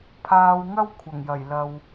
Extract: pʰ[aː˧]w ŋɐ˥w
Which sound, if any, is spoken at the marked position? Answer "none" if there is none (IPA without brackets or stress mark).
aː˧